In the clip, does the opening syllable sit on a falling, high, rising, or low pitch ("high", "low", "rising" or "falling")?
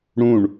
falling